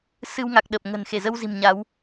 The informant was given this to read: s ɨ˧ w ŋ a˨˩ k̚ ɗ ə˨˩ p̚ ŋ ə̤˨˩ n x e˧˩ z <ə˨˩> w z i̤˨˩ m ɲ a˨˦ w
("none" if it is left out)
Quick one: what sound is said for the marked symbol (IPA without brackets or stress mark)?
ə˧